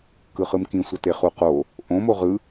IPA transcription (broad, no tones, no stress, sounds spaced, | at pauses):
k ɯ χ ɯ m k ĩ sʷ ʌ t e χ u q o | ʔ õ m o ʁ ɯ